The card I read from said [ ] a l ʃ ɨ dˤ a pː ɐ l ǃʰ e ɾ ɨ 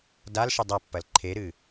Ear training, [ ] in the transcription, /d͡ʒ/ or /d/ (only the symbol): d